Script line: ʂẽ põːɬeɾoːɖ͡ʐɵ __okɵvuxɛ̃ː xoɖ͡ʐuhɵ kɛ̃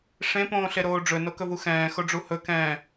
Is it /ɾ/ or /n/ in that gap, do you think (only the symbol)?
n